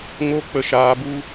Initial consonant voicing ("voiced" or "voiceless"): voiced